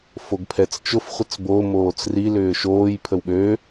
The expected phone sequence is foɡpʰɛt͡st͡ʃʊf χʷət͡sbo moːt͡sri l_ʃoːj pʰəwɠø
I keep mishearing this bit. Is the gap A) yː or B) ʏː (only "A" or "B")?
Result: B